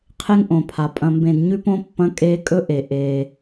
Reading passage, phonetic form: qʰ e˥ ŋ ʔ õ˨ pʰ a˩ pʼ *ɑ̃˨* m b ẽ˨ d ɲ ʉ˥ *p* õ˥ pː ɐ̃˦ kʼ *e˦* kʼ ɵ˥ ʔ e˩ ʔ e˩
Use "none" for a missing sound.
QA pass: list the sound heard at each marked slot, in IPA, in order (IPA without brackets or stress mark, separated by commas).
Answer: ɐ̃˨, p, e˦